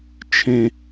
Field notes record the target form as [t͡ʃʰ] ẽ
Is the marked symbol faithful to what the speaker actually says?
yes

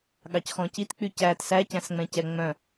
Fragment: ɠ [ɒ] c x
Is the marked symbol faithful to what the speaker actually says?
no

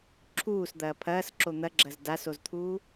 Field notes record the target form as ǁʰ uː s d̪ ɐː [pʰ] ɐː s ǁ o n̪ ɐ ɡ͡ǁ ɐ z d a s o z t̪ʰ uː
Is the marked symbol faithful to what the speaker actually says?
yes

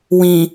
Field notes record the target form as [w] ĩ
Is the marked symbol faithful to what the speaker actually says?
yes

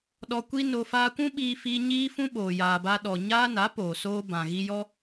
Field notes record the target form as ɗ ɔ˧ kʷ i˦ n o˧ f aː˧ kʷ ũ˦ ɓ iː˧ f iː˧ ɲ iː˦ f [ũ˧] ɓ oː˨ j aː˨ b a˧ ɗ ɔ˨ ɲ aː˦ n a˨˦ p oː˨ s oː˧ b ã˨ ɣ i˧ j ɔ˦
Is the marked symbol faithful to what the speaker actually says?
no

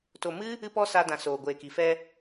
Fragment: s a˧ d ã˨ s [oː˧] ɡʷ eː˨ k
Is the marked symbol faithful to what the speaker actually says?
no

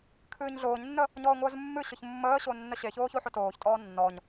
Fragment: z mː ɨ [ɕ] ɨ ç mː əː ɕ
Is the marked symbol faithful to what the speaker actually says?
yes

